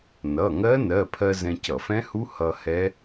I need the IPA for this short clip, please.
nʌ˩˧˩ŋɜ˦˥ nɜ˩˧˩pʰɜ˧ zɛ̃˧cʌ˧˩˧fɛ̃˦˥hu˦˥ hʌ˧ hɛ˦˥

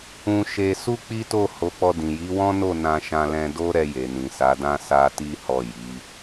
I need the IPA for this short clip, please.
ũ˧ʃe˧ su˦k͡pi˦to˦˨ ho˨˦k͡pɔ˧dĩ˨ ji˨˦wɔ̃˦no˦˨ nã˧ʃã˧lɛ̃˧ do˦ɾɛ˧je˨ nĩ˨sa˨˦dã˦ sa˧ ti˦hɔ˦˨ ji˨˦

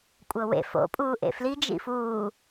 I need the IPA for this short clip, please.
kʷʼɤwḛ fo̰ pʼuːʔḛfli d͡ʒḭfuː

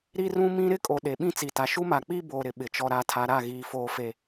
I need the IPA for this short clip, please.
ɾi˦rũ˦mĩ˦ ɾɪ˦ kʼo˨ ɗe˨ ɓĩ˦t͡si˨ta˨ ʃu˦ma˨k͡pi˦boː˨ ɾɪ˨ ɓɪ˨t͡ʃɔ˨ ɾa˨tʰa˨ ɾa˦˨ɣiː˨ foː˨fe˨

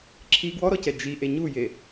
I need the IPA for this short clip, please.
ǁʰi ɡwɔɾɔcɛ d͡ʒiʔe ɲuje

